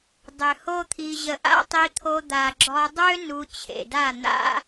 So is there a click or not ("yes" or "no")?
yes